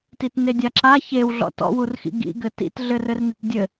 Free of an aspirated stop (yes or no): yes